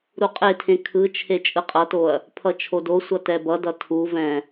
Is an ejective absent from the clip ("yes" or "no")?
no